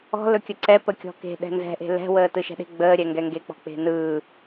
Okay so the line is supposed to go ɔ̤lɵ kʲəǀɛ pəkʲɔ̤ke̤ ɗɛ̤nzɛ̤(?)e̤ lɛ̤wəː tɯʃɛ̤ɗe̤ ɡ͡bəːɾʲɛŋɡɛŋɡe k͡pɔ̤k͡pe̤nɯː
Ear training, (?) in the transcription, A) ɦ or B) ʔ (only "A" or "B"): B